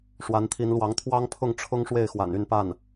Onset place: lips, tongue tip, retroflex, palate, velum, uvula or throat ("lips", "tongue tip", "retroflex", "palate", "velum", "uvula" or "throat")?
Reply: retroflex